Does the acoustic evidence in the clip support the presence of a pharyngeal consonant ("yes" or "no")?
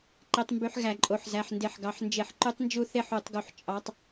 yes